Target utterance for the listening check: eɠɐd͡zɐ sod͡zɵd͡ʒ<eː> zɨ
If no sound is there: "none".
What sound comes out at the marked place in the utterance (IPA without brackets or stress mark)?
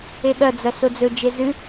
e